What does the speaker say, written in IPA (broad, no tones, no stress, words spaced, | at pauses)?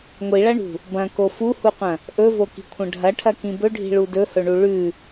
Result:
ŋʷiɭɐɳṳ | bɐ̃ko fuhuqʷɐ̃ | ʔɵvoki̤kʷʰɐ̃ ɖʱɐʈʰɐkĩ bɵɖʱi̤ɭu dɵhɵɳu ɭʉ